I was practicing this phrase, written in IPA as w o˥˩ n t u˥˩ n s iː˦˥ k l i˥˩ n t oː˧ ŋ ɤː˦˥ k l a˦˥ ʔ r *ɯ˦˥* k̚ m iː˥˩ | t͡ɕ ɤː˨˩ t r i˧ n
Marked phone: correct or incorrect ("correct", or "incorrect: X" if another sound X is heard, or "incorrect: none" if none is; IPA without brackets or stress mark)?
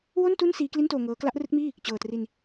correct